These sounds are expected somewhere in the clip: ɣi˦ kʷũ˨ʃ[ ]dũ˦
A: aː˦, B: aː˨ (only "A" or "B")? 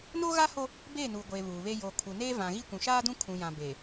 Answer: A